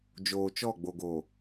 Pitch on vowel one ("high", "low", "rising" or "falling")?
low